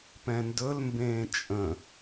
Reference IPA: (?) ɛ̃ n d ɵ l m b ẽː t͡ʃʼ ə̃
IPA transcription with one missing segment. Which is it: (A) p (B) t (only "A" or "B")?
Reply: A